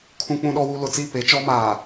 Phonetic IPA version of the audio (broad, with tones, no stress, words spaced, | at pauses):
kʰũ˦k͡pũ˦ɗɔ˦wu˦ lʊ˨t͡si˦˨ pe˨˦t͡ʃɔ˦maː˨